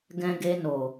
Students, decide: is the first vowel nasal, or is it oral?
nasal